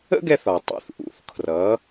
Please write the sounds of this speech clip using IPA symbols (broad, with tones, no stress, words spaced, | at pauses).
ə̰˥ɡɛ˧θ ɒ˩tˤṵ˩˥θ ʔṵ˩˥θkʰrʌ˩˥